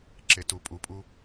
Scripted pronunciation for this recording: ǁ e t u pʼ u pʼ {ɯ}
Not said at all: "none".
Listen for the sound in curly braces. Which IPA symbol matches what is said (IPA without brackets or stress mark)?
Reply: u